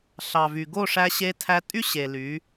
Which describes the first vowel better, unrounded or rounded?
unrounded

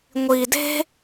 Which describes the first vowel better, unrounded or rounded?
unrounded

